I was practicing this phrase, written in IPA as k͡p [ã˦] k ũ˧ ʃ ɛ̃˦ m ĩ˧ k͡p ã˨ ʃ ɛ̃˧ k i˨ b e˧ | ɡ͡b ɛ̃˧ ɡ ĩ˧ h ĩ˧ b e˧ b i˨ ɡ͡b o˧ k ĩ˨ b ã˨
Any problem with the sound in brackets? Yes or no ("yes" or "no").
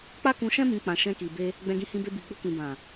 yes